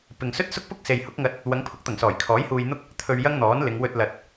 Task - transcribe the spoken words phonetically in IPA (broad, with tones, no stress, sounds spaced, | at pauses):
p ɪ˨ ŋ s ɵ˥ t̚ s ʊ˥ k̚ p ʊ˥ k̚ s e˨ j h ʊ˨˥ k̚ ŋ ɐ˧ t̚ | w ɐ˨˧ ŋ pʰ ʊ˨˥ k̚ t̪ ɐ˨˩ ŋ s ɔː˨˩ j kʰ ɔː˨˥ j h uː˧ j n̪ ʊ˥ k̚ | t̪ʰ ɵ˧ ɥ j ɐ˥ ŋ n̪ ɔː˨˥ n l ɪ˨˧ ŋ w ɵ˧ t̚ l ɐ˨ t̚